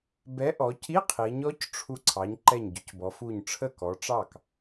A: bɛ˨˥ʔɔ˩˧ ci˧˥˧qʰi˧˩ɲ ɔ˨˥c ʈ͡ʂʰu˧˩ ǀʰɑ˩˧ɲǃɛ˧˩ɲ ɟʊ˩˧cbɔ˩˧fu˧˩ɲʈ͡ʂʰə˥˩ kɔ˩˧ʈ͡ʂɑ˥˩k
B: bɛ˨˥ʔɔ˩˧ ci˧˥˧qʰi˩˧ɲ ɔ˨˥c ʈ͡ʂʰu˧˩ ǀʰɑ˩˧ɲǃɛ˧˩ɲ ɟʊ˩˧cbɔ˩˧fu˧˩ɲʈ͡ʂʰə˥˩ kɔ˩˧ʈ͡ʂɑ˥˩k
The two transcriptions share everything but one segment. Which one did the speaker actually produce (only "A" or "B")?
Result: B